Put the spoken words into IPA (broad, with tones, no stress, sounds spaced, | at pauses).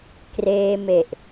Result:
k r eː˧ m e˨˩ ʔ